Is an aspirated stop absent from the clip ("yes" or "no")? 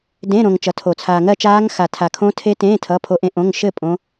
no